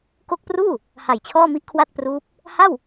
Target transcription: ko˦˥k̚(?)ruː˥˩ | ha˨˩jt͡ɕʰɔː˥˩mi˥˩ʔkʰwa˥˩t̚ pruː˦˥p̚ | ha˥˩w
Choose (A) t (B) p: B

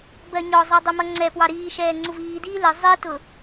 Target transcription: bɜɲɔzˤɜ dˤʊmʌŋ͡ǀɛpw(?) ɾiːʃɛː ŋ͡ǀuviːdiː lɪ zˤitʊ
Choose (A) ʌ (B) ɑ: B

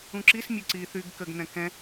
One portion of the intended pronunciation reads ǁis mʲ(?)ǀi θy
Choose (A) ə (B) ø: B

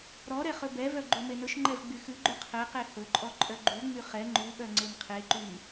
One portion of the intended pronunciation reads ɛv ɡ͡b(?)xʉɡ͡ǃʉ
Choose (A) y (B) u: A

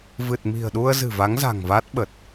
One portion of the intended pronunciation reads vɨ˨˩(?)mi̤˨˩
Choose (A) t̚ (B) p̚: A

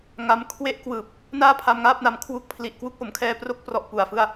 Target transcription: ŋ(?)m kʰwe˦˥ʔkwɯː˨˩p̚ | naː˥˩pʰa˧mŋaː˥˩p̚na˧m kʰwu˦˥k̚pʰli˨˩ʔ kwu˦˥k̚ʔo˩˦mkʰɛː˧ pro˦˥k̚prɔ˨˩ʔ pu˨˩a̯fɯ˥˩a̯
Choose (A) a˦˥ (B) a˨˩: A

